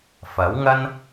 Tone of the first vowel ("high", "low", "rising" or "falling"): rising